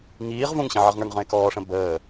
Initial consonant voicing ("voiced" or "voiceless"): voiced